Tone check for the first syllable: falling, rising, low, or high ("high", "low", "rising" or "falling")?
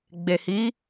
low